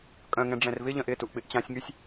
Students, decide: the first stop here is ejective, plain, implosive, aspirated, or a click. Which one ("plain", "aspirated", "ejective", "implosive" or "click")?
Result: ejective